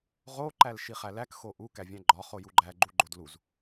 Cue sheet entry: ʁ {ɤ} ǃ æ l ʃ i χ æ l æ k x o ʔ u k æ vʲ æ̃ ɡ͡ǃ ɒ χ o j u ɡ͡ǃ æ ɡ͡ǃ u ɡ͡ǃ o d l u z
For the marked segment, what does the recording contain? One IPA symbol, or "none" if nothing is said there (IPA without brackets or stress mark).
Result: o